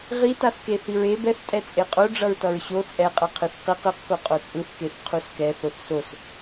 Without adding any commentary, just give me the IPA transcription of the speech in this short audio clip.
ʁ i t a θ k e θ i ɹ e b ɛ θ tʼ ɛ t͡sʼ e qʼ o ɖ͡ʐ ʌ ɹ t ʌ ɹ ɕ o t͡sʼ ɛ qʼ ʌ qʰ ɯ θ q i q ɯ q k o qʼ o t͡sʼ ɯ θ k e θ qʰ u s k ɛ θ o θ s o s

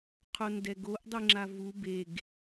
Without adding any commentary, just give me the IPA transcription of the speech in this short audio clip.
qʰ o n d ɛ ɡ o ʔ dˤ i ŋ͡ǁ a v u b e ɡ

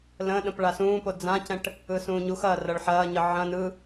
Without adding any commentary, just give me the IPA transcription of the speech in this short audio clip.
l ə̃ː ɗ ə̃ p ɭ a s ũː p o d͡z ã c ɛ̃ ʈ | ɯ s ũː ɲ u x ɐː r ɐ ɭ ħ ɐː ɲ ə ʕ ɐ̃ n ɯ

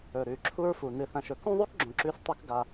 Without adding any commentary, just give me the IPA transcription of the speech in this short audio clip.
ɵ˨ ɾ ʉ˨ ǁʰ u˦ ɹ f u˨ n ɨ˨ θ ɐ̃˨ ʃ ɵ˨ k ũ˦ ðˤ ʉ˦ k ɡ͡ǁ õ˨ ǁ ʉ˦ s tˤ ɨ˦ k ɡ a˦

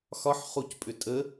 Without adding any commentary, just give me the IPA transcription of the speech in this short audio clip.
x ɒ ħ χ u c pʼ ʏ tʼ ə

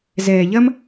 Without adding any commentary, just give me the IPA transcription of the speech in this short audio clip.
z ɛː˨ ʎ ɐ˦ m

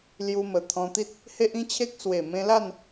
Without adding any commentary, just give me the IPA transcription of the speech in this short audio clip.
l j u˧ m ə˨˩ t̪ʰ ɔ̃˧ t̪ i˦ t̚ | h e˦ ʔ ĩ˦ t͡ɕʰ e˦ k̚ s w e˨˩ m ẽ˧ l a˥˧ n

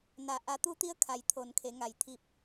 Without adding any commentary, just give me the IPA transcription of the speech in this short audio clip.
n a˩ ʔ a˩˧ t̪ u˧˥ t̪ i˧˥ ə̯ kʰ a˩˧ j t̪ʰ o˩˧ n kʰ e˩˧ ŋ a˩ j t̪ʰ i˧˩ p̚

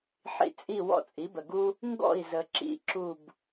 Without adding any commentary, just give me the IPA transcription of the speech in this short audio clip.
ħ ḭ˧ t͡sʼ i˥˩ w ɔ̰˥ t͡sʼ i˩˥ b ə˩ ɡ u˥ | ŋ ɡ ɔ̰˥˩ i̯ z ə˩ ǁ ḭ˧ ǁ u˥˩ b

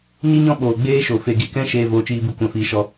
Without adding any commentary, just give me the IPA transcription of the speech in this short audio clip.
ɲ i˦ ɲ ɔ̃˦ ɓ oː˨ ɡ͡b eː˦ ʃ o˨ f e˨ ɡ i˨ k ɛ̃˧ ʃ eː˦ v oː˧ t͡ʃ iː˦ b ɨ˦ kʷ ã˦˨ f iː˧ ʃ ɔ˦

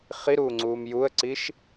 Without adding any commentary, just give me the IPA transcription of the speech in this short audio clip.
χ i ɾ uː ŋ͡ǀ uː m j u ə̯ ǀ i ʃ

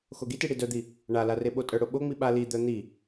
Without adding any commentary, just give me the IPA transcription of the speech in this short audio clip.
x o ɡ i t i ɽ i d œ d̪ i | ɳ a l a r e ɓ o tʼ œ ɽ o ɓ o ŋ͡m i ɓ a l i d̪ œ n̪ i

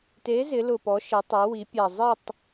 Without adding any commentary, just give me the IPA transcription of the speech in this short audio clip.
t e˨˥ z ɪ˩˧ l ʊ˨˩ p ɔ˩˧ ʃ e˩˧ tˤ u˩˧ w i˩˧ pʲ a˨˩ zˤ i˥˨ tˤ

